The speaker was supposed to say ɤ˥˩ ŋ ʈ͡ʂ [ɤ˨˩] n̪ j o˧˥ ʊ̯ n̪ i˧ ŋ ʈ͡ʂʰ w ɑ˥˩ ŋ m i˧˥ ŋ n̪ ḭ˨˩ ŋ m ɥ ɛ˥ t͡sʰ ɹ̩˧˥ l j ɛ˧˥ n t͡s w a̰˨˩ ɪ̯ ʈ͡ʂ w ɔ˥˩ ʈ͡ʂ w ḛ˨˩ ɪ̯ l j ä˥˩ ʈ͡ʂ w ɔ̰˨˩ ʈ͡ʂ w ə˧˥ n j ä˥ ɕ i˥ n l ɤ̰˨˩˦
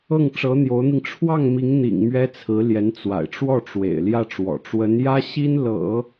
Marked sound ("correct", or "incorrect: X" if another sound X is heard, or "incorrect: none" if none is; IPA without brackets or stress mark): incorrect: ɤ˧˥